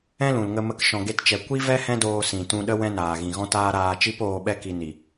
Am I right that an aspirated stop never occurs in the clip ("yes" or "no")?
yes